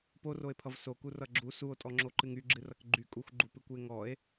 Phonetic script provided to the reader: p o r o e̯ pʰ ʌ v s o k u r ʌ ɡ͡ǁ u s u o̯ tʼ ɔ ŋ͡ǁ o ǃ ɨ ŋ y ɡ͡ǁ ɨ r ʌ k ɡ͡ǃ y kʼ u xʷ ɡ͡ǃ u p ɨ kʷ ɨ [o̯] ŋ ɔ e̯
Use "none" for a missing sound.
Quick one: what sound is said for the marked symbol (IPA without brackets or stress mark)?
e̯